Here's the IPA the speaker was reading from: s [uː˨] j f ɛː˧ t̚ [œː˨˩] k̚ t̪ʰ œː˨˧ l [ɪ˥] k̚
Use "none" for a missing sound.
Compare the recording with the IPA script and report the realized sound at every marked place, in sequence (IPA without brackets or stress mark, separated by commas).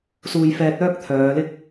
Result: uː˧, œː˥, ɪ˥